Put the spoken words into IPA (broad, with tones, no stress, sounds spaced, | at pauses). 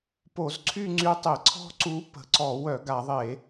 p o˧˩˧ z ǀʰ y˥˧ ŋ͡ǀ y˧˥ tˤ e˧˩˧ ǀʰ ɔ̤˥˧ ǀ u˧˥ p ə̤˧˩˧ ǀ ɔ˧˩˧ w œ˧˩˧ ɡ a˧˩˧ ðˤ e˧˩˧